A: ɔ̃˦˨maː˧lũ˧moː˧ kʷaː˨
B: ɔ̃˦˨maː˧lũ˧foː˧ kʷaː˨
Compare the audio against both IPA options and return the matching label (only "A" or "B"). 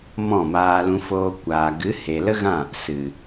B